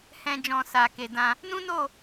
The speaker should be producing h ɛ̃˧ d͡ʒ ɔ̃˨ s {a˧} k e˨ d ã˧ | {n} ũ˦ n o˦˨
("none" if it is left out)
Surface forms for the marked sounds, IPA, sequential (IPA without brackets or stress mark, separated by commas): a˨, n